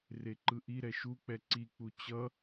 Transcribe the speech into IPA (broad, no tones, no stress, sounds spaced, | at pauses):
r e ǃ ɯ ʔ i ɾ ɛ ʃ u k͡p ɛ ǀ i k͡p u t͡ɕ ʌ